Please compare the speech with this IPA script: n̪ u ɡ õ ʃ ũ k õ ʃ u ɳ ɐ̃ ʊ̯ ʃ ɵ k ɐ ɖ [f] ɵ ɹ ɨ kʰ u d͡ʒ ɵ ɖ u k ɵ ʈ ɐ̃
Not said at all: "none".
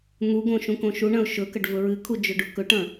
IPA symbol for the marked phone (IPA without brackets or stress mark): v